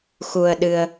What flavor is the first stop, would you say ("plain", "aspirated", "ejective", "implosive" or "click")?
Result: implosive